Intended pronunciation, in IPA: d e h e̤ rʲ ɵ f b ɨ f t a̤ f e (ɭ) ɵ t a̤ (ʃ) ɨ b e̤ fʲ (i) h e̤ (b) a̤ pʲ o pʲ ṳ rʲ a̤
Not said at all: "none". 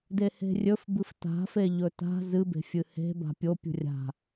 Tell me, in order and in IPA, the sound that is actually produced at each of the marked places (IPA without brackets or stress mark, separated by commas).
ʎ, z, ɨ, b